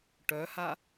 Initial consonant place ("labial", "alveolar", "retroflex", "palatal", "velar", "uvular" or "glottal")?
retroflex